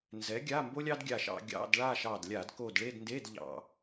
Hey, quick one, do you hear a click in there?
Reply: no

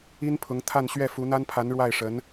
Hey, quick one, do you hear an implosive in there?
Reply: no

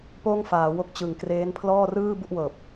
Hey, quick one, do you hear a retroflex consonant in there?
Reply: no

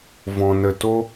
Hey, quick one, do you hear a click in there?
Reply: no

